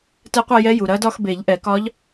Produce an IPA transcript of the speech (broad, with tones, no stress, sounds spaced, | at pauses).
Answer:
t ɛ˧˥ qʷ ɐ˥˧ j ɛ˧˥ j u˩ ɾ ɐ˧˥ d ɒ˥˧ x b e˨˩˦ ʎ ʔ ɛ˨˩˦ k ɒ˧˥ ʎ